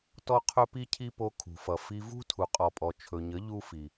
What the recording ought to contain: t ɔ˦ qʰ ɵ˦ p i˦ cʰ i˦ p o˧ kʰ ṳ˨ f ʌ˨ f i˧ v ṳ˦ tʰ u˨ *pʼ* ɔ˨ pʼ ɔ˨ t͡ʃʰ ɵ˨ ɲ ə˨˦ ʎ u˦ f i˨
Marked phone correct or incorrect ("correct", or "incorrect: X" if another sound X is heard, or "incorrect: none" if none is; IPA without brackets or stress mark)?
incorrect: qʼ